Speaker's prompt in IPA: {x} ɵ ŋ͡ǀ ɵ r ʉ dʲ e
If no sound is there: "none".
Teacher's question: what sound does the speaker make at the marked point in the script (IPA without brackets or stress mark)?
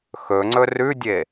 x